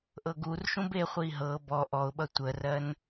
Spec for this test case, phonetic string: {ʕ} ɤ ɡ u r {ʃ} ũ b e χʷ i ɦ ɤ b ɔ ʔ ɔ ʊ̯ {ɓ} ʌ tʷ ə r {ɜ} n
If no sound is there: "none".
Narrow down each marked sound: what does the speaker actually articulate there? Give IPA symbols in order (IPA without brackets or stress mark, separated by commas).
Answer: ʔ, ʃ, ɓ, ɜ